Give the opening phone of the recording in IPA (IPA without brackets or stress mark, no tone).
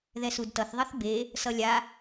ð